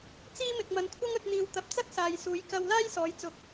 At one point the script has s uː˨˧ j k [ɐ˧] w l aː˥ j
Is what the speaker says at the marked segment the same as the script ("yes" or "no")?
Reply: yes